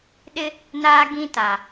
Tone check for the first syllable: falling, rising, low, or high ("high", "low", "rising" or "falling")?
high